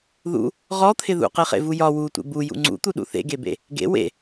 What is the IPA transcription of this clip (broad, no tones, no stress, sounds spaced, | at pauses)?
ð ṵ | ʁ ɔ t̪ʰ ɪ ð ṵ q e χ ḛ v u j ɒ w u tʷ ḛ b u j ṵ ŋ͡ǀ ṵ t̪ u ɗ ṵ θ ḛ ɡ e b ḛ | ɡ ḛ w ḛ